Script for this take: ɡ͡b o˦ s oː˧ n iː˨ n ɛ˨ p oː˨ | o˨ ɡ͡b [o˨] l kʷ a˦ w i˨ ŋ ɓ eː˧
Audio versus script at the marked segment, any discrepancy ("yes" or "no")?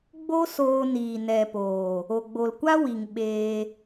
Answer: no